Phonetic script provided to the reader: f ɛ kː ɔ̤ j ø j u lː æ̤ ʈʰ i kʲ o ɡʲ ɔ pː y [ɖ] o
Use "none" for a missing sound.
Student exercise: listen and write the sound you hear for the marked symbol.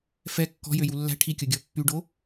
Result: ɖ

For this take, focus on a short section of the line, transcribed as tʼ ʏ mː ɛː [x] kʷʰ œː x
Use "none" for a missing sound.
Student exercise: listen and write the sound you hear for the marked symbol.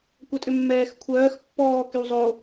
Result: x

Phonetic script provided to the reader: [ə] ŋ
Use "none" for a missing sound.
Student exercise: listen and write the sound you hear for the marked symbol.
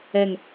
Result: ɛ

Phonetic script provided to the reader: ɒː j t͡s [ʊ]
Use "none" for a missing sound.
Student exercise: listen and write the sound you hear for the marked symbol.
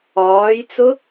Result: ʊ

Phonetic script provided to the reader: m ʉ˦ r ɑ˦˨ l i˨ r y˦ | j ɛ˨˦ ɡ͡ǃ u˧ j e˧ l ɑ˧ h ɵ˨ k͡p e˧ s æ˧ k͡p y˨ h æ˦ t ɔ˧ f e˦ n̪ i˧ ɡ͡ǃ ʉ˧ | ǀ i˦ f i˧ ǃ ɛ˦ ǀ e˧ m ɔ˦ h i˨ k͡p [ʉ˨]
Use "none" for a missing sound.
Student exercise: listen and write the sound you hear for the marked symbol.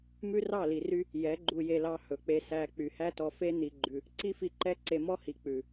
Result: ʉ˨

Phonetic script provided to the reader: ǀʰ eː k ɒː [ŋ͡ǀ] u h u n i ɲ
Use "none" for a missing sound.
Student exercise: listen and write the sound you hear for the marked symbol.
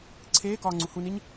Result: ŋ͡ǀ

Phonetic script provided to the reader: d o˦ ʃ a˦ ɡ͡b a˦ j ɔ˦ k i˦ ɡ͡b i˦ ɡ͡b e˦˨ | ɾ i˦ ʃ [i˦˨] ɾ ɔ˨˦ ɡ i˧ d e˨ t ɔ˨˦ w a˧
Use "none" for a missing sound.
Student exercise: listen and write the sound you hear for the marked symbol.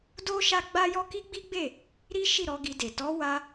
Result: i˦˨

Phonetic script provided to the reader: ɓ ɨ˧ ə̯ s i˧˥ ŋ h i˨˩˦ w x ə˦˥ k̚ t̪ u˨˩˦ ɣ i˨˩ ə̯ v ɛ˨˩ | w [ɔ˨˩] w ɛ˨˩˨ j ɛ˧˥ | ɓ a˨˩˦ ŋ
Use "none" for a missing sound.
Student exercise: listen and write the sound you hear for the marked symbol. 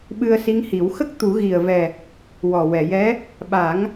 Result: ɔ˨˩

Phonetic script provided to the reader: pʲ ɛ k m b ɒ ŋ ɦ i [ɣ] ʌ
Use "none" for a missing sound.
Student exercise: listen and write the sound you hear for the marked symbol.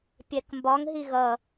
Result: ɣ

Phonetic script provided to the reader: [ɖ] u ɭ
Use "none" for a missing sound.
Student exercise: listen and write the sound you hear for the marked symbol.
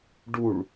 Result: ɖ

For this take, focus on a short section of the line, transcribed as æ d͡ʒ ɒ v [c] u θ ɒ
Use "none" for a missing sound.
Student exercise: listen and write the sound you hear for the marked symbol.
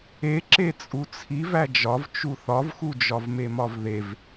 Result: t͡ʃ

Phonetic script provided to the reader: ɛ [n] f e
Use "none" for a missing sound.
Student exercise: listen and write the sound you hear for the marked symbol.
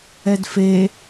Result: d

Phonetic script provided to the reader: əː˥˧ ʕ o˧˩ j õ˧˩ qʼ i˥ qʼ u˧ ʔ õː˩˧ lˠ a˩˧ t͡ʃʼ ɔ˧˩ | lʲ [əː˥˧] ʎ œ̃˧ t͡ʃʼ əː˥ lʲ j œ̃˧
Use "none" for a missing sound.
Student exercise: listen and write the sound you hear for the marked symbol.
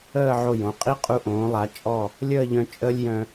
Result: əː˥˧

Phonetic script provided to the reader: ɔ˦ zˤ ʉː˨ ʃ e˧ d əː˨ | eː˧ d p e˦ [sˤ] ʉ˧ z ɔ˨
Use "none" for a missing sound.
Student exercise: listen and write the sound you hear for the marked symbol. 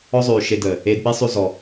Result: sˤ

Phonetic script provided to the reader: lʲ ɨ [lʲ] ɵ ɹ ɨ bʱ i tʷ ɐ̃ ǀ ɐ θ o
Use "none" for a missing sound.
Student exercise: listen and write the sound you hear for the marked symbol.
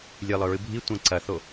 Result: lˠ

